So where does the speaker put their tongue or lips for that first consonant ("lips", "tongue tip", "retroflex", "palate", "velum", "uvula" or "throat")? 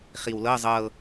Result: uvula